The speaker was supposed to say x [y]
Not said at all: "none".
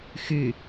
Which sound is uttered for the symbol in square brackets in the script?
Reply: y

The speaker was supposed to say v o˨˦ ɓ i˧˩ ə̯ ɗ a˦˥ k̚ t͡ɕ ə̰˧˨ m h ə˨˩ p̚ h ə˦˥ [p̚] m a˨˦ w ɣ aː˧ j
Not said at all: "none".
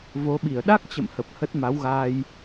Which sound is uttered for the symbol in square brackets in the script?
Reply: t̚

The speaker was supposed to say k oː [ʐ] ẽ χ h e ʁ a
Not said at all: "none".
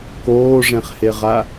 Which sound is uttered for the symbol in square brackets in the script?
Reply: ʐ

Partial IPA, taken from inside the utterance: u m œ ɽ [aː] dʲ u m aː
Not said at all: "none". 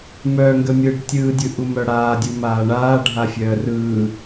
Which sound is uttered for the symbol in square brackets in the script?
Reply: aː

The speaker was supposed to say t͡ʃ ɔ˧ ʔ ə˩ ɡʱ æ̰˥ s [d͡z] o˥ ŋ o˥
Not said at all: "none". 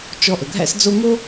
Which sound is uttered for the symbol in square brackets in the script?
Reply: d͡z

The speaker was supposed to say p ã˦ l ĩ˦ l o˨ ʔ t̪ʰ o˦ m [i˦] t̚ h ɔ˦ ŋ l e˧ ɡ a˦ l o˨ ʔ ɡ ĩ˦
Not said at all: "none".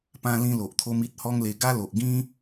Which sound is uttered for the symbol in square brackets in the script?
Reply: i˦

